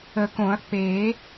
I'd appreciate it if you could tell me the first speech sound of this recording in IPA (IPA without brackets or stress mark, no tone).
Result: ə